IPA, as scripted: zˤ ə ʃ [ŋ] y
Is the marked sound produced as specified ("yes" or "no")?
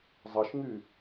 yes